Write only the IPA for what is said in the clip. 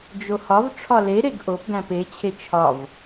d͡ʒ o h ɒ v ʈ͡ʂʰ ɒ l e ɾ e ɡ ʔ o p ɡ æ̃ p e t͡ɕʰ e t͡ʃʰ ɒ v

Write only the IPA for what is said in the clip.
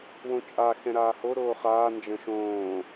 w õ t͡ʃʼ a x ɛ̃ ɾ aː h o ɾ oː χ aː n d͡ʒ ə̃ ʃ õː

